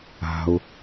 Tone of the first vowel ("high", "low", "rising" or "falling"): low